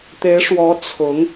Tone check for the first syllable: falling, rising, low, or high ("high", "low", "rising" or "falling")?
rising